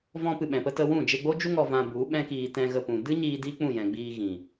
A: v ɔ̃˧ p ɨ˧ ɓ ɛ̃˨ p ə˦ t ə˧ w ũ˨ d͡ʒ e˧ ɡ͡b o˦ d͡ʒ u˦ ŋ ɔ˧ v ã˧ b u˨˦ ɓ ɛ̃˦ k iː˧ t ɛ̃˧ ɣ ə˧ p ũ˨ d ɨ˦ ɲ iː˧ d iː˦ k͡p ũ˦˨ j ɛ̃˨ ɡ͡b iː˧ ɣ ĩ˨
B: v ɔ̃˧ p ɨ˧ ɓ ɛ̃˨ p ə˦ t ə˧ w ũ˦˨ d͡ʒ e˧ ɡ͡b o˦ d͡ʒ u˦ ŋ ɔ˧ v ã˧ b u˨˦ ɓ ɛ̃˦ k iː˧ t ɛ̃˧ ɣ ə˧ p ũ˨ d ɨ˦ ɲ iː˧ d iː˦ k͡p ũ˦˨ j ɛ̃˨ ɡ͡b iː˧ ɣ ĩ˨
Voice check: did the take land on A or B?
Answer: B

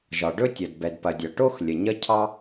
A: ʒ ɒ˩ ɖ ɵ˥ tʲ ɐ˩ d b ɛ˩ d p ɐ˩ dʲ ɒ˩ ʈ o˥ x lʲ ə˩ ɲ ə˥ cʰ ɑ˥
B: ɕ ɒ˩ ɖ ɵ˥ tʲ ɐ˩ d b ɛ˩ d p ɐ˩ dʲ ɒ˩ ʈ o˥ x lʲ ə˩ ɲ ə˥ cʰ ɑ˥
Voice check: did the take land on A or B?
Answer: A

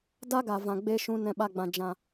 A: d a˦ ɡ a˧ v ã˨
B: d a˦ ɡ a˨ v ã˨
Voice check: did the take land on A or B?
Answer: B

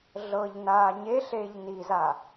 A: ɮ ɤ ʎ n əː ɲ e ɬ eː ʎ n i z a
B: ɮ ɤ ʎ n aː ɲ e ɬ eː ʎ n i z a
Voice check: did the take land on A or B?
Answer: B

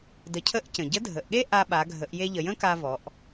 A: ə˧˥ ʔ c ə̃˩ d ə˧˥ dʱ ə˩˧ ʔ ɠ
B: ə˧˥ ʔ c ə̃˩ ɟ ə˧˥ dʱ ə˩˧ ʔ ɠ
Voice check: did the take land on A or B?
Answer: B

